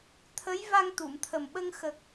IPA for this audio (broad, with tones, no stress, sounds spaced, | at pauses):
t̪ʰ ə˧˥ j v a˧ ŋ t̪ u˨˩˨ m t̪ʰ ə˨˩ m ɓ ə˧ ŋ x ə˨˩ k̚